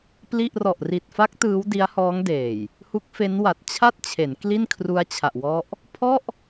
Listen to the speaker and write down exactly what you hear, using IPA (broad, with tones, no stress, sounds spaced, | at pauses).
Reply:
p l i˥˩ ʔ r ɔ˨˩ ʔ r i˨˩ t̚ f a˦˥ k̚ t ɯː˦˥ w d i˦˥ a̯ h ɔː˦˥ ŋ d eː˨˩ j | h u˦˥ k̚ f e˦˥ n w a˨˩ t̚ t͡ɕʰ a˥˩ t̚ t͡ɕʰ e˩˦ n k l i˥˩ n kʰ r u˦˥ a̯ t͡ɕʰ a˨˩ ʔ w ɔ˦˥ ʔ | pʰ ɔ˥˩ ʔ